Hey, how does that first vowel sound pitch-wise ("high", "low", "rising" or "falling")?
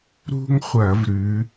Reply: high